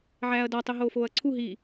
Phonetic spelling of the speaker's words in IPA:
ʕ æː ɐ̯ d ɒ tˤ e ɦ oː f oː ɐ̯ ǀʰ u ɦ i

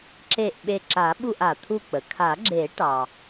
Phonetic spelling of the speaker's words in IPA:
ǁ e˧˩ ʔ ɓ e˧˩ ǁ a˨˩˦ ɓ u˥˨ ʔ a˩ t̪ʰ u˥˨ k͡p ə˩ kʰ a˨˩˦ ɡ͡ǁ e˨˩˦ ʈ ɑ˩

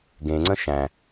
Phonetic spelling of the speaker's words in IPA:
ɡ ẽ ŋ͡ǀ ə̃ ʃ æ̃

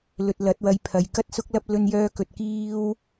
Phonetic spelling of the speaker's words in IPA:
l ɵ˧ t̚ l ɐ˨˥ t̚ w ɐ˧ j pʰ ɐ˨ j k ɐ˥ t̚ s ʊ˥ k̚ l ɐ˥ p̚ l ɵ˧ n j œː˧ k ɵ˨ t̚ k iː˥ w

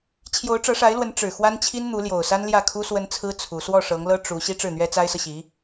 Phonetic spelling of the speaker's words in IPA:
t͡ɕʰ j o˧˥ ʊ̯ ʈ͡ʂ ɤ˧˥ ʂ a˧˥ ɪ̯ l w ə˧˥ n ʈ͡ʂ ɻ̩˨˩ x w a˥ n t͡ɕʰ i˥ n n̪ u˧˥ l j o˨˩ ʊ̯ s a˥ n l j ä˥˩ kʰ u˥ s w ə˥ n t͡sʰ ɹ̩˥ t͡sʰ u˧˥ s w ɔ˥˩ ʂ ɤ˧˥ ŋ l ɤ˥ ʈ͡ʂ u˧˥ ɕ i˥ ʈ͡ʂ ɻ̩˥˩ n̪ ɥ ɛ˥ t͡s a˥ ɪ̯ s ɤ˨ ɕ i˧˥

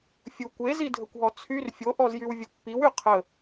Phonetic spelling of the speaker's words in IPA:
fʲ u kʷ e z i dʱ ə kʷ ɦ ɔ t͡sʰ y r fʲ o ʔ ɔ z j y w vʲ o pː i w y qʰ ə

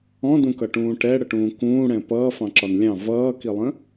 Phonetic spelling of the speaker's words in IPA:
ɔ̃ d ũ k ʌ ʈ ũː ʈ ɛ ɽ ə ʈ ũː k ũː ɽ ɛ̃ p ʌː f ɑ̃ ǁ ɒ n lʲ ɑ̃ v ʌː k i lˠ ə̃

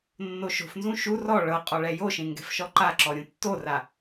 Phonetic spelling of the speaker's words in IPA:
nː o ʃ o̤ f n z ũ ʃ u r ɔ ɭ ɤ qʼ ɔ ɭ ɛ j o ʃ ẽ ŋ ɡ ɛ̤ f ʃ ɔ ǃ a ǁ ɔ ɾʲ ũ tː o r a

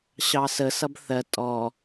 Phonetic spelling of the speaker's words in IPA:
ɕ ɑ s ə s ʌ b θ ɜ tʼ ɔ

